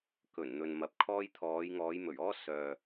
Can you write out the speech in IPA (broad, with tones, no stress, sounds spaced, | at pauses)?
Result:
k ɵ˨˩ n n̪ ɵ˨ n m ɐ˨ p̚ kʰ ɔː˥ j t̪ʰ ɔː˨˧ j ŋ ɔː˨˧ j m ɵ˨˩ ɥ ɔː˥ s œː˨